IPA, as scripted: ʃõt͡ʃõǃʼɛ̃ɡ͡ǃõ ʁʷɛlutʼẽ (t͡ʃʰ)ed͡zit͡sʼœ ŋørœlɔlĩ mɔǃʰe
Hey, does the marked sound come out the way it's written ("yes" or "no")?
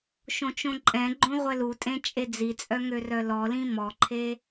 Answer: no